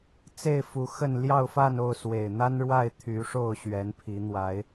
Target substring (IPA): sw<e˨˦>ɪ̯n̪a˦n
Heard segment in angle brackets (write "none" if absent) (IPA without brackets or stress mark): e˨˩